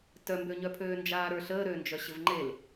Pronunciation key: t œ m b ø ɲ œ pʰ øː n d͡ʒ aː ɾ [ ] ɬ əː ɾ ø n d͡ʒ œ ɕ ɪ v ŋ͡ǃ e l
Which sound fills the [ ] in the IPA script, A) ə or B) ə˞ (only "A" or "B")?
B